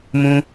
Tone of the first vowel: high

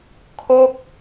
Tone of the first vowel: falling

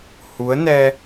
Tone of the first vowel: rising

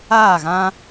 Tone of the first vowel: falling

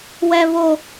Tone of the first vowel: high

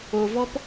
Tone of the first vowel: low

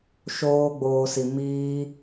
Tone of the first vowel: high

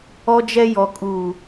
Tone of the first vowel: high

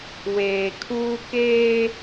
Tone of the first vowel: low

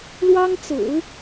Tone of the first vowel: high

